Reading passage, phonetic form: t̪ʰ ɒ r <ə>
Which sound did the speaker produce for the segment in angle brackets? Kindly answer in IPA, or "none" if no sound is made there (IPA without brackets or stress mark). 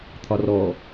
ɔ